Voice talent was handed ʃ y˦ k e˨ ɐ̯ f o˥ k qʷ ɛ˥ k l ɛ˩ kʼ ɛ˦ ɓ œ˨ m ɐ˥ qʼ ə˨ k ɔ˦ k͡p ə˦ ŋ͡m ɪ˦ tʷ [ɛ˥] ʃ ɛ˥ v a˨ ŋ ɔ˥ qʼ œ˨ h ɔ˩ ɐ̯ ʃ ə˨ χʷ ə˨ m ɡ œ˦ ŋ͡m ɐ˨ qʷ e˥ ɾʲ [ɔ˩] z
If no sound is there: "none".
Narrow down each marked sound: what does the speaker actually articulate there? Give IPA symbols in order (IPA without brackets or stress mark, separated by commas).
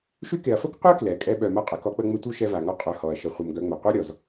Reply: œ˥, ɔ˩